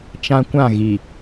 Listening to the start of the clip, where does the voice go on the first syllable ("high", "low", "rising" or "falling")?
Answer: high